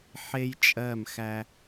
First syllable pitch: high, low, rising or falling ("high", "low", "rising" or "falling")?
high